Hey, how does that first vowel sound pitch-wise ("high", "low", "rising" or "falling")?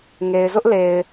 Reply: low